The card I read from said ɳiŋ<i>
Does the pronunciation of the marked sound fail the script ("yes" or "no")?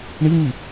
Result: no